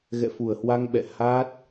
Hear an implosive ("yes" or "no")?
yes